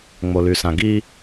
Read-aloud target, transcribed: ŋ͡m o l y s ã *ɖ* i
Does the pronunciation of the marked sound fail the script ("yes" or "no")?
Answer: yes